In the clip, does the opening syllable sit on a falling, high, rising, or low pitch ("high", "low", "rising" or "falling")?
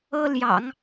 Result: high